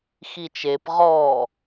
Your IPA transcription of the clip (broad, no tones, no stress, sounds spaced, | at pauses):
x i t͡ʃ e p ʁ ɔ